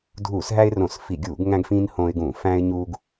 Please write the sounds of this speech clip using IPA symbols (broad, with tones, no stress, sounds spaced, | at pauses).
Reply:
dʱ uː˧˩˧ s ɦ æ˦ ɪ̯ r õ˧˩˧ s f i˧˩˧ ɡʲ uː˧˩˧ ɡ ŋ æ̃˦ ɡ f ĩː˦ n h õː˦ ɪ̯ ɡ ũ˧˩˧ f æ̃ː˦ ɪ̯ ɲ uː˦ ɡ